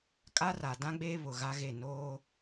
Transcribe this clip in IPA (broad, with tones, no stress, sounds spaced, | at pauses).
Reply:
kʼ a˦ r a˨ d ã˦ ɡ͡b eː˦ β ʊ˨ ɣ a˦ ɣ e˦˨ n oː˦